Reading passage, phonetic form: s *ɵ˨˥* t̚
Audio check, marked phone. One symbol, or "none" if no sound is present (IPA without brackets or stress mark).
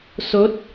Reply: ɵ˨˥